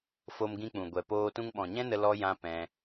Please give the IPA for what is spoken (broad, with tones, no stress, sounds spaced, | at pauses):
f o˧ m ɡ ĩ˧ k͡p ũ˨ ɡʷ ɛ˨ p oː˧ t ũ˧ ŋ ɓ ɔ̃˨ ɲ ɛ̃˦ n ə˧ l ɔ˦ j ã˦ p ɛ̃˧